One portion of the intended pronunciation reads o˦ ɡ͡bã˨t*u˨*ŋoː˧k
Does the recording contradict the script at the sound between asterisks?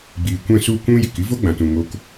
yes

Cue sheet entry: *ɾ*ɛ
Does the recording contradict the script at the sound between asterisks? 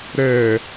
no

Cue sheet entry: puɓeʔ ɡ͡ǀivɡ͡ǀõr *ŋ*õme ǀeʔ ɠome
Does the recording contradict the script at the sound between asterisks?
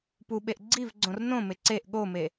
yes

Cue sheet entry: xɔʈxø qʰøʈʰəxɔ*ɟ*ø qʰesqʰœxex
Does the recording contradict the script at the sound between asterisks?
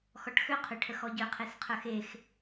no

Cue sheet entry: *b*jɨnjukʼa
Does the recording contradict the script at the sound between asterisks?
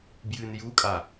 no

